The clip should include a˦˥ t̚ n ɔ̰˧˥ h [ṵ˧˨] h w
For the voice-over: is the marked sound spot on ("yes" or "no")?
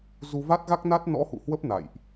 yes